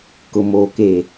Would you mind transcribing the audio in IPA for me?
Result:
kʊ˨moː˨ keː˨

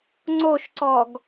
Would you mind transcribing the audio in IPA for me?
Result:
ŋ͡ǀoʃǀɔɡ

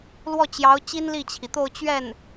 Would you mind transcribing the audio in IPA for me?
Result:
lwɔ˥˩t͡ɕjɑ˧˥ʊ̯ t͡ɕi˥nli˥˩t͡ɕʰi˩t̪o˥˧ʊ̯ t͡ɕɥɛ˥˩n

